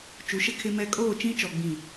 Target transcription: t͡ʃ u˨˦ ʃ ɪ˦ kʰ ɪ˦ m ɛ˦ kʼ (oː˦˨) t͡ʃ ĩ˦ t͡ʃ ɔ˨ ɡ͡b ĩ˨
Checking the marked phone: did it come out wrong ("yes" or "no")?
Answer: no